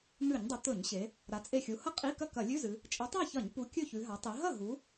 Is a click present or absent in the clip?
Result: absent